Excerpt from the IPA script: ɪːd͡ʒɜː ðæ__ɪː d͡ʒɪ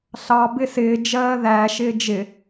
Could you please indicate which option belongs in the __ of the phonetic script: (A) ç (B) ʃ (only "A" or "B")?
B